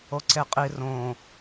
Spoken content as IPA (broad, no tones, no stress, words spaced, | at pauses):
oǀeqʼi rõ